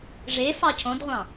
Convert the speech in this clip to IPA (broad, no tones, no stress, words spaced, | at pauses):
ʐefɑ cʰõdʁʷɑ̃